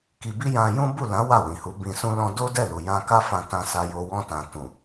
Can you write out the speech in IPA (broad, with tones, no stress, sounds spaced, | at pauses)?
k i˧ b i˦ j ã˧ j ũ˦ b u˦˨ l ã˨˦ w a˦˨ w ĩ˨ h u˨˦ b ĩ˧ s ũ˧ l ɔ̃˧ d o˦ d ɛ˦˨ l u˨ j ã˧ k a˦ f ã˧ t ã˧ s a˧ j o˧ w ɔ̃˧ t ã˨ t ũ˨